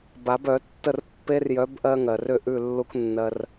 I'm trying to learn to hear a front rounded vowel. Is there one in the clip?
yes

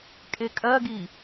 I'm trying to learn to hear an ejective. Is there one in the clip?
yes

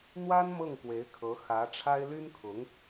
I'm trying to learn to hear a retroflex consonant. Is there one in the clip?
yes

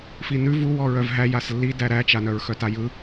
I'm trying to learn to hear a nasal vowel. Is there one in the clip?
no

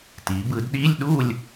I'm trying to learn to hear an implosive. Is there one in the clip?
yes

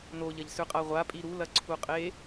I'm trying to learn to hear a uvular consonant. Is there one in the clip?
yes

